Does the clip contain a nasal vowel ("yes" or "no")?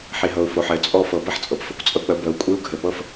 no